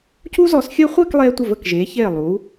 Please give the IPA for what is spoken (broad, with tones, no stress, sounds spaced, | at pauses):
c u˥ z ɔ˧ s xʲ əː˥ χʷ ɘː˥˧ k lˠ eː˧ tʷ ə˧˩ v ə˧˩ k ʒ eː˩˧ ç eː˧˩ lˠ uː˩˧